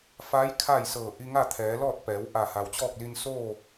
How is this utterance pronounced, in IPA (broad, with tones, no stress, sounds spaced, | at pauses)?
f a˧˥ j kʰ a˥˨ j s ɤː˧˩ ʔ i˧ ŋ a˥˨ t̪ʰ ɛː˩˧ l ɔː˥˨ t̚ p ɛː˩˧ w ʔ a˧˩ h a˩ w t͡ɕ ɔː˥˨ k̚ l i˧ n s oː˥˨